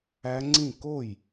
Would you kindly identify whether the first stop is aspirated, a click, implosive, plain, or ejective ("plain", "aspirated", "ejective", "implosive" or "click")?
click